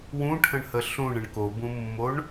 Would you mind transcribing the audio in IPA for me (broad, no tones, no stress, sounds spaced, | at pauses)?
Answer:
w ũ ʈʰ ə̃ ɳ h ə ɬ ũ ɳ ə̃ ɳ k o b ũ mː o ɳ